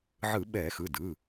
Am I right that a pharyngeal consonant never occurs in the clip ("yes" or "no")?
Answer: no